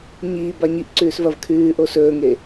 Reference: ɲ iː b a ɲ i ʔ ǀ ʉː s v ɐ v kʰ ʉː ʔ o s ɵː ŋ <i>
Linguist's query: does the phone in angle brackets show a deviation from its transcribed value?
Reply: yes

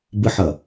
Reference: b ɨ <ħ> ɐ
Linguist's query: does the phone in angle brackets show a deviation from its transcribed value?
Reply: no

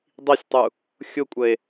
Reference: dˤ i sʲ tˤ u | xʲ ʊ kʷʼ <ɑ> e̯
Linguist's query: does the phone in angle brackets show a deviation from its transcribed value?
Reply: yes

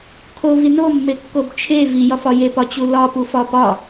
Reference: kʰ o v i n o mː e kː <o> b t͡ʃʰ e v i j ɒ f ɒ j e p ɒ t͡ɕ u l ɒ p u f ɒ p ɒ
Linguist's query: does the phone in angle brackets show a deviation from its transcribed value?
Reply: no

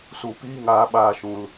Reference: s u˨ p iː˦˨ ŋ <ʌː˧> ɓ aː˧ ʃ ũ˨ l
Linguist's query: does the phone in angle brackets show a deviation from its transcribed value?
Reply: yes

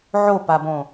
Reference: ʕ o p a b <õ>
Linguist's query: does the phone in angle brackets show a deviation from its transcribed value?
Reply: no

